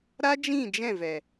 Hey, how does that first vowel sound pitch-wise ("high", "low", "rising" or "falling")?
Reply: high